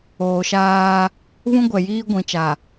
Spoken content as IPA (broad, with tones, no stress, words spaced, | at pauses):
oː˨ʃaː˦ | βũ˦ɡʷɛ˨ jiː˦ ɡʷĩ˨t͡ʃa˨